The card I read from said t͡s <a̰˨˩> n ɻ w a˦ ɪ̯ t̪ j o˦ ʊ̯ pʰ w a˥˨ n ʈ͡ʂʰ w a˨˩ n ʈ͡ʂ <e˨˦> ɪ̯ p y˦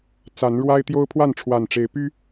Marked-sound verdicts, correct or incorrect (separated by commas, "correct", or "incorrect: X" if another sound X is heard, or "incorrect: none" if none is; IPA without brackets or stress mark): incorrect: a˨˦, correct